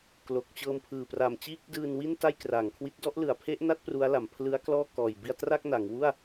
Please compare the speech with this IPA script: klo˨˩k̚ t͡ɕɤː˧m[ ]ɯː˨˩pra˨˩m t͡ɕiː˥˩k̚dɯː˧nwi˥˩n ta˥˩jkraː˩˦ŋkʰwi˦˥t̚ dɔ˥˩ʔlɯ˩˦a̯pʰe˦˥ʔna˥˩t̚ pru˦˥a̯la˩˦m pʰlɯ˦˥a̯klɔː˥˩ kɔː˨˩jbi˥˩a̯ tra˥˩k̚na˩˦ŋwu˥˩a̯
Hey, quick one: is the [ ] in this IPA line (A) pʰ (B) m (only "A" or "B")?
A